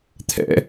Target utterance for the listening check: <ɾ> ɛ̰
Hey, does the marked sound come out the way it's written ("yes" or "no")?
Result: no